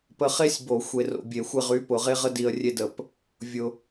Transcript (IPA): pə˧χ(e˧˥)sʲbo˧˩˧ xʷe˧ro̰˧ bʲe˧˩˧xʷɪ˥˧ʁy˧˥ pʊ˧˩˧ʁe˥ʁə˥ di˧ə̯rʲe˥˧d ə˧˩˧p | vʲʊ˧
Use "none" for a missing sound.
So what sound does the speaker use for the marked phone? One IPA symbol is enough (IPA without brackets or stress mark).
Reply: e˥